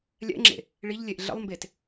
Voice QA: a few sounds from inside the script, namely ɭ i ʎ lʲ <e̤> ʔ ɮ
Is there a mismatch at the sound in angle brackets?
yes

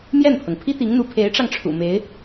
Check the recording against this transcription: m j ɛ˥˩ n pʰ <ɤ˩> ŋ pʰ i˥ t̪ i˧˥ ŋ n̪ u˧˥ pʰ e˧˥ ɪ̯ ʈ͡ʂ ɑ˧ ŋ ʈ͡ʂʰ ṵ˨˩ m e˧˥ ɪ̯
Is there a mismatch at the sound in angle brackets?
no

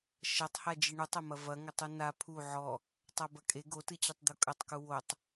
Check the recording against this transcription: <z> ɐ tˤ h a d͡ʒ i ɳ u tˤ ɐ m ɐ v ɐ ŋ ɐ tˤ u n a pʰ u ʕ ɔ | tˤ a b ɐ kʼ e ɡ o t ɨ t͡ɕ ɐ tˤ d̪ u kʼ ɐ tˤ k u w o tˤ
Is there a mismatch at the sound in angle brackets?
yes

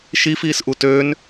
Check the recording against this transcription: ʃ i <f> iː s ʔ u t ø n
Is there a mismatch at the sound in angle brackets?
no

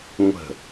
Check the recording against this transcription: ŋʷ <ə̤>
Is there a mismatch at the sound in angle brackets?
no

